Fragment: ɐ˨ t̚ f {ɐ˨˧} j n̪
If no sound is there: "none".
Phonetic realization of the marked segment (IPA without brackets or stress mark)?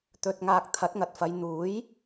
ɐ˨˧